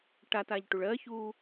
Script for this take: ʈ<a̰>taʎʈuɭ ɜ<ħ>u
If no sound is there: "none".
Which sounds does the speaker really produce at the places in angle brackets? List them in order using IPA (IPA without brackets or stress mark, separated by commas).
a, ç